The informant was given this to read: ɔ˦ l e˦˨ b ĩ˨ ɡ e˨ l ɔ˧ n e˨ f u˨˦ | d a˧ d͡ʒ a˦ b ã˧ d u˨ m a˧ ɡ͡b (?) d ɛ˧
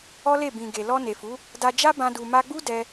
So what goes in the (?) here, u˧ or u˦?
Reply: u˦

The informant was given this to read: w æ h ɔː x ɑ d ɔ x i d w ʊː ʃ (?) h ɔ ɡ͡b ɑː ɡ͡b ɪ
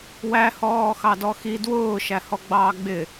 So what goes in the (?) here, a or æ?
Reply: æ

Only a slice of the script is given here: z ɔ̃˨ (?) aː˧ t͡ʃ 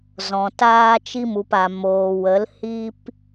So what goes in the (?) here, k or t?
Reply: t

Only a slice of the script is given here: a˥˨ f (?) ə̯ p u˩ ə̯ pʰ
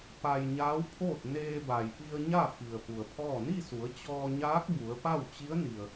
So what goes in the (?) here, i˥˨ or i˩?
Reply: i˩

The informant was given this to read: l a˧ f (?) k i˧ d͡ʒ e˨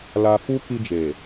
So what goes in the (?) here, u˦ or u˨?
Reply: u˦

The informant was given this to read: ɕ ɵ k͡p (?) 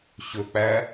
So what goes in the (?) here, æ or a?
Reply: æ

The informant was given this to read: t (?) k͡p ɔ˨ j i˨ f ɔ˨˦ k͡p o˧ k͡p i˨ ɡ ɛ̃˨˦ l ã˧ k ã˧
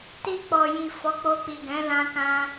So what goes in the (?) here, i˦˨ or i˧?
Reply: i˧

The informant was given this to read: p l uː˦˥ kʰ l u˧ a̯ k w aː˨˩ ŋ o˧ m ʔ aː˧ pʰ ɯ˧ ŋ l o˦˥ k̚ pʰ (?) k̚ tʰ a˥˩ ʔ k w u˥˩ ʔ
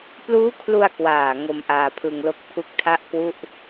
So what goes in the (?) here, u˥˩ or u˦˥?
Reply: u˦˥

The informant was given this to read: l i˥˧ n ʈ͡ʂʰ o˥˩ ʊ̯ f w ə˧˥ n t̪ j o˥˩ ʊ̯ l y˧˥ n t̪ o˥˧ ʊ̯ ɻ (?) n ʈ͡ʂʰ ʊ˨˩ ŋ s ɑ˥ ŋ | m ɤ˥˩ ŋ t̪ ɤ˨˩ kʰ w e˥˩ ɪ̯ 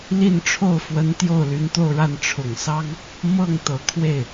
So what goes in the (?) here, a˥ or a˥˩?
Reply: a˥˩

